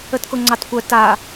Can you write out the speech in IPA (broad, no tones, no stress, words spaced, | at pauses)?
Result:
ətkoŋ͡ǀɑtkʷœ ta